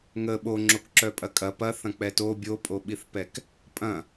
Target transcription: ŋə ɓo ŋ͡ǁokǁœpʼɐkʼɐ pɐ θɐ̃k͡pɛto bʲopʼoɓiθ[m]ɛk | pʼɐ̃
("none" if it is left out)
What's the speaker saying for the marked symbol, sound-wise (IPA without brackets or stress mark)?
p